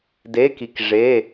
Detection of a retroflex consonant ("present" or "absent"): present